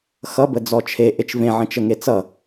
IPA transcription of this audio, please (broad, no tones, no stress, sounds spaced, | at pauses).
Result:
x ʌ b ə d͡z ɔ t͡ʃʰ e ʔ e t͡ʃ v ẽ ʕ ə̃ t͡ʃ ə ŋ e t͡s ʌ